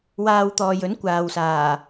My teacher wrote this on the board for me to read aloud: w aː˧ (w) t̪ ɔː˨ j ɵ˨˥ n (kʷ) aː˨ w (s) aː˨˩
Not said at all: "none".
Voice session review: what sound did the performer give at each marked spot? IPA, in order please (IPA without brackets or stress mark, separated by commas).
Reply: w, kʷ, s